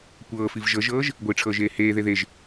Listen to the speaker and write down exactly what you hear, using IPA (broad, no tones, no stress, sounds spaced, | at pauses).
kʷ ɤː f i v ʒ ɤ ʒ ɤː ʒ | ɡʷ i ʈ͡ʂʰ ɤː ʒ eː h eː ð e ð e ʒ